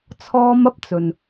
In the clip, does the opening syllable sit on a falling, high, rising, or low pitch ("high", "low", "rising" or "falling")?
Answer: high